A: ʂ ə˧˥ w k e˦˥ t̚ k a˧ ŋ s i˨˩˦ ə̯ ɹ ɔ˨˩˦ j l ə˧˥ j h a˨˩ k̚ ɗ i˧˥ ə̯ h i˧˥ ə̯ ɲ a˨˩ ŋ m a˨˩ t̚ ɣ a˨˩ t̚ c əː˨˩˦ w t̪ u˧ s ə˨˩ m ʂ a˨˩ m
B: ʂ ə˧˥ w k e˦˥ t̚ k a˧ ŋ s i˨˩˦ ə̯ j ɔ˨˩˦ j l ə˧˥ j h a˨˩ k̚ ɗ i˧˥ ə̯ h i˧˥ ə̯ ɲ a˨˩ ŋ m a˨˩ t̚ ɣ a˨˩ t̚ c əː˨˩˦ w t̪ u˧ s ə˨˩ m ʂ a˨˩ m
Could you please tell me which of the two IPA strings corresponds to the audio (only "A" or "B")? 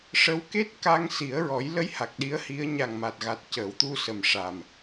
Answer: A